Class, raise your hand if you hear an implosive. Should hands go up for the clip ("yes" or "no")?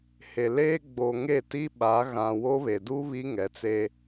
yes